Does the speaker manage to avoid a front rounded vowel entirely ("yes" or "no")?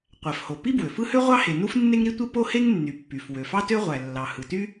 no